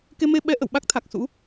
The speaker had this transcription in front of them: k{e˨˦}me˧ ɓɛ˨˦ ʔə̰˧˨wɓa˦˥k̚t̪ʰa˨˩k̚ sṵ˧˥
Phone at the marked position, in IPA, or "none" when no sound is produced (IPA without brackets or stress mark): e˧